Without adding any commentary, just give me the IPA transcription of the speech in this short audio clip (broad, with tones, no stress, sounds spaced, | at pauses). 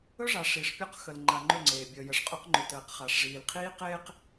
ɵ˦ ʐ a˨ ʂ i˨ ʂ pʲ ɔ˦ q x ə˨ l ŋ͡ǃ a˨ ŋ͡ǃ ɵ˦˨ ŋ͡ǀ eː˨ bʲ əː˨ j ə˨ ʂ qʼ ɵ˦ q ŋ͡ǃ ɵ˨ t əː˨ q χ a˨ ʂ ʐ iː˨ l qʰ iː˦ q eː˨ q